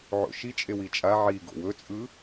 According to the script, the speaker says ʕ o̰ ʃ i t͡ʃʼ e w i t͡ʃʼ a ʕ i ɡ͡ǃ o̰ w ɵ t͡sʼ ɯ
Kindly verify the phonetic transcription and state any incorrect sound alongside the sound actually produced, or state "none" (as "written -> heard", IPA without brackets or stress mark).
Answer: ɡ͡ǃ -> ɡ